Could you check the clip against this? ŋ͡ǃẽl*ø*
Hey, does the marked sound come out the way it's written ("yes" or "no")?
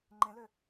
yes